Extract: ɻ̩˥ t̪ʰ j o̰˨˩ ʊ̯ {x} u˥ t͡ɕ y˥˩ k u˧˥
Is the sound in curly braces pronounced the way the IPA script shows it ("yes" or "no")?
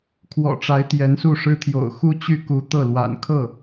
yes